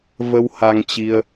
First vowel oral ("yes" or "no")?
yes